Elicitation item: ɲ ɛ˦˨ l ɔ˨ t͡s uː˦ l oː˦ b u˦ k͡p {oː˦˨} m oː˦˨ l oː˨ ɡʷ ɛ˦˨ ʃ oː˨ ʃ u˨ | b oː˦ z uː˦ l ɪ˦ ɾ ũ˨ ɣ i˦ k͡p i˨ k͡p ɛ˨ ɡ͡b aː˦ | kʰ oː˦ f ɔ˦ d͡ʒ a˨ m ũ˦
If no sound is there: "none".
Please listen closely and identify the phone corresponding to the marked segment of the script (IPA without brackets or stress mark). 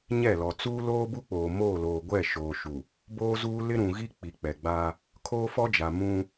oː˨